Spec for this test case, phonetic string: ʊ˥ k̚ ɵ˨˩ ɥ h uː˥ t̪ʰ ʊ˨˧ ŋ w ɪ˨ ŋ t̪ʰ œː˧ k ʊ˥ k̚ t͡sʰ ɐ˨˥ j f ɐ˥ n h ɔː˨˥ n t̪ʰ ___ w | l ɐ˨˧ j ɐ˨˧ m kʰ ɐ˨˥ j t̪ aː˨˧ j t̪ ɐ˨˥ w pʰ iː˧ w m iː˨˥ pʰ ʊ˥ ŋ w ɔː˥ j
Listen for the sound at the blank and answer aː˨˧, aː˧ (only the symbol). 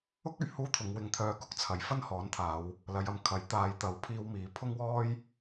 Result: aː˨˧